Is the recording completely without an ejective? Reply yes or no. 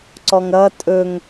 no